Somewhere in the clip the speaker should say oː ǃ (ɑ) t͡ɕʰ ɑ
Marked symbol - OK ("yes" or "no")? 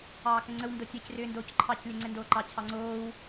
yes